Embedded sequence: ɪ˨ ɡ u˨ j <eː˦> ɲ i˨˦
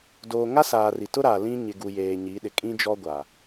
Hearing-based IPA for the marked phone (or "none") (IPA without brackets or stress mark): eː˨